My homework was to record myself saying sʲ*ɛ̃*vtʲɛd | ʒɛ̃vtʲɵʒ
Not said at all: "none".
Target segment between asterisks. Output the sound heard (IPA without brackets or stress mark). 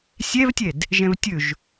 ɛ